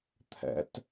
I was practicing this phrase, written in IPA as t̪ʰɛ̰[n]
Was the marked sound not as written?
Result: yes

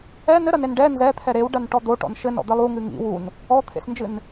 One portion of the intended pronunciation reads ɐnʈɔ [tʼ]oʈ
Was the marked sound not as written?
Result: yes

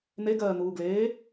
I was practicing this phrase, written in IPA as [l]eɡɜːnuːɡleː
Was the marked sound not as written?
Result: yes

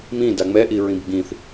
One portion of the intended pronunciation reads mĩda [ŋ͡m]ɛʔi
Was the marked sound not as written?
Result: no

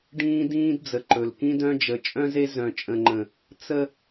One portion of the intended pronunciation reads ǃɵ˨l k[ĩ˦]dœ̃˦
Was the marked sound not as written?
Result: no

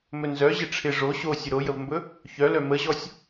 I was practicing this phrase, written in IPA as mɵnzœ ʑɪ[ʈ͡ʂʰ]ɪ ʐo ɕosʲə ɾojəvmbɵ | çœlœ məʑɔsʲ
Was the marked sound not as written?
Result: no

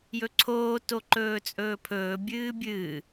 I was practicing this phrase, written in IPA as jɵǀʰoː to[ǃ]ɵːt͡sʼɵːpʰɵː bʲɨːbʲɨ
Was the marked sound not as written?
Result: no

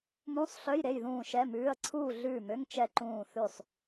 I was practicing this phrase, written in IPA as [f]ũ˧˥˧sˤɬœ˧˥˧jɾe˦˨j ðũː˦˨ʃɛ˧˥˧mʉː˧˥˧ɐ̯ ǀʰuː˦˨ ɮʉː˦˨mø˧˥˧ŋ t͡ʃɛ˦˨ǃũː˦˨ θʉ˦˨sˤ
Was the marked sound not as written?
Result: yes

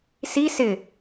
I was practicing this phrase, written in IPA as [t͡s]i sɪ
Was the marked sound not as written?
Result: yes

